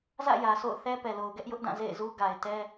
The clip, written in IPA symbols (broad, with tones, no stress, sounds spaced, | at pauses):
z ä̰˦˨ j ä˨ s o̰˦˨ ʊ̯ θ ɛ˦ p ɛ˨ l o˨ ʊ̯ ɡ ɛ˦ ʔ j ʊ˦ ʔ d ã˦˨ z ḛ˦˨ ɪ̯ z u˦ ɡ a˨ ɪ̯ t ɛ˦